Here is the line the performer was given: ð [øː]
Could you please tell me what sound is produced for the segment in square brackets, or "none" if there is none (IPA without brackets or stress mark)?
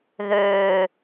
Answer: øː